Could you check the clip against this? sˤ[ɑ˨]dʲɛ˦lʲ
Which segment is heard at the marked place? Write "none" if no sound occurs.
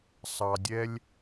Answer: ɑ˨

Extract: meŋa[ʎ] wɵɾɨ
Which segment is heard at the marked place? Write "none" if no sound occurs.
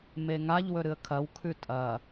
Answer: ʎ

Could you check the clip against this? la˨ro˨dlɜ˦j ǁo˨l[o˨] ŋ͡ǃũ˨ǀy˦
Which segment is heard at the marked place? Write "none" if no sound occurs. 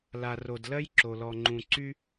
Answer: ɔ˨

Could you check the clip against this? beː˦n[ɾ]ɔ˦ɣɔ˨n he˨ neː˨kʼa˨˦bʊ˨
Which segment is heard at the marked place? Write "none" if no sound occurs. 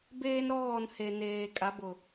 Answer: ɾ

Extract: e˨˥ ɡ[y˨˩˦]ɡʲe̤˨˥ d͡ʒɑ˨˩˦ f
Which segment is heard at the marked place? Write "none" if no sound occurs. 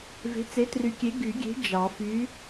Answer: y˨˩˦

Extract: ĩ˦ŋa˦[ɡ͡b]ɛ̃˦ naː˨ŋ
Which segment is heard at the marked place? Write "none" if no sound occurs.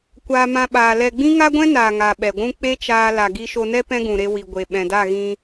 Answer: ɡʷ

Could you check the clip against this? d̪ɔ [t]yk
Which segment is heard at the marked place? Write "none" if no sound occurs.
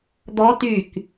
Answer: t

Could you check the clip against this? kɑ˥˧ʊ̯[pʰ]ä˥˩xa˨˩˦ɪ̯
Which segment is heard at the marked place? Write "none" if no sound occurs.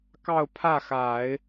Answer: pʰ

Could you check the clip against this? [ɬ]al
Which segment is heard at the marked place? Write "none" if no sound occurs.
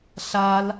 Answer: ɬ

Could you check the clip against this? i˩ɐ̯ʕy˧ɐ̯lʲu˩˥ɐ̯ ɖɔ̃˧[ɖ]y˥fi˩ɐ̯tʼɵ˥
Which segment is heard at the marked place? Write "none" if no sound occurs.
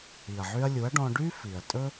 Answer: ɖ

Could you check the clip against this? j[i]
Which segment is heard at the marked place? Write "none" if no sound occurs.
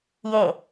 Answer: e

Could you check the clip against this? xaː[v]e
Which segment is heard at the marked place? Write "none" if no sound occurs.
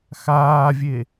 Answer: vʲ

